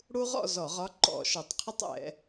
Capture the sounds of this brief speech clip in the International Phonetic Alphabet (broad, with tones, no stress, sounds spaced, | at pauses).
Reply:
ɽ u˦ ʁ ɔ̰˥˨ z ɔ˧˩˧ ʁ ɒ˦ ǃ ɔ̰˧˩˧ ʃ ʌ˨˩ tˤ qʰ ə˦ tˤ ɛ̰˩˧